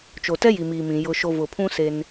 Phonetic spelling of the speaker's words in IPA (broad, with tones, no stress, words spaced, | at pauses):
t͡ʃo˨tɛ˦ ji˨miː˨mĩ˨ jʊ˨ʃo˨ vʊ˨pʰũ˦ se˦n